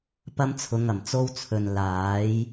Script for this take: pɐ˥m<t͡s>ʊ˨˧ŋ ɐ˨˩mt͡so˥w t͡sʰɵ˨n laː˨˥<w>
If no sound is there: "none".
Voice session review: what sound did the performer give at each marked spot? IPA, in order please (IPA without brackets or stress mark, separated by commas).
t͡sʰ, j